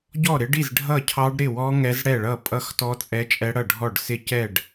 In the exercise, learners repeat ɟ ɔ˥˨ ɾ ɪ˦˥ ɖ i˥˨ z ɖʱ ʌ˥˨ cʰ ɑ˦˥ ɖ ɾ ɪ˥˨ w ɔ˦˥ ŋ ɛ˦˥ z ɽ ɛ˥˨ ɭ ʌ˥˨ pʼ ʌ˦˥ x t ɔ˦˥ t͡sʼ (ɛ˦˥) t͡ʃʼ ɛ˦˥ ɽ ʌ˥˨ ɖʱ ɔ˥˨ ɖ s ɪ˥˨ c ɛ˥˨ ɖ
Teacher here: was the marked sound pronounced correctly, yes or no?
yes